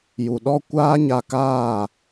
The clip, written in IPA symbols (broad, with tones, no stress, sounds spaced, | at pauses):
j u˨ ɗ ɔ˦ kʷ aː˦ ɲ a˧ k aː˦˨